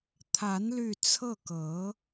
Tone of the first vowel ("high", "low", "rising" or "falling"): rising